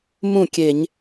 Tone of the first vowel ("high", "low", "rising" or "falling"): falling